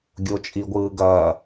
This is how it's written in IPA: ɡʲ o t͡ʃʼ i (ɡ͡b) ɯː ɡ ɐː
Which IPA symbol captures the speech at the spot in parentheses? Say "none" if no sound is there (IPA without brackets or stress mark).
ɡʷ